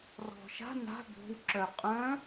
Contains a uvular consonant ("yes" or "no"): yes